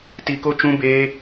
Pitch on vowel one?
low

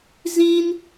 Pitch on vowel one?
high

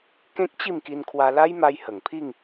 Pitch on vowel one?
high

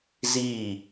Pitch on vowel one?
falling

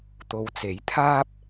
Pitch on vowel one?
low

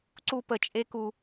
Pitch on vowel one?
high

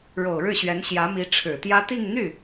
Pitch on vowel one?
low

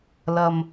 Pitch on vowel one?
low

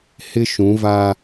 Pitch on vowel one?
high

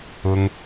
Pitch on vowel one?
high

